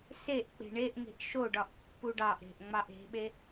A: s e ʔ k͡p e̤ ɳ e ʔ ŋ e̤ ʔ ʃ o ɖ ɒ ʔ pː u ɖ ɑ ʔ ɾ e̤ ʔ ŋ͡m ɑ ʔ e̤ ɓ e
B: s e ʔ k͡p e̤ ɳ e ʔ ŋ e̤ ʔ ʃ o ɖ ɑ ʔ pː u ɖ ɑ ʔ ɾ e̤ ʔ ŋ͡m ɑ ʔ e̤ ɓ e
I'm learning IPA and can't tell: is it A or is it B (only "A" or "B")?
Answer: A